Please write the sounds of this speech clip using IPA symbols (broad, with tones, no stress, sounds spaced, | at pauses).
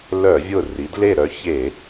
l œ˧˩˧ vʲ ʊ˧˩ r i˩˥ d l e˥˩ ɾ œ˧˥ ç e˧˩˧